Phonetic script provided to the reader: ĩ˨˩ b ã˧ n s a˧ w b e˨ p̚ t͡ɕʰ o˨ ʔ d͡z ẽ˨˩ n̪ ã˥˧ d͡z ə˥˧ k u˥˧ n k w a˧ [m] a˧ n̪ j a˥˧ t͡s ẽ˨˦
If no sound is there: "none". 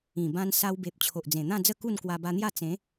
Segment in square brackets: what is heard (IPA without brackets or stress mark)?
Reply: b